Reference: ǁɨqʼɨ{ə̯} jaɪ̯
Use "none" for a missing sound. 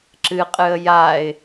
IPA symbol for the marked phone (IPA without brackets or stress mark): ə̯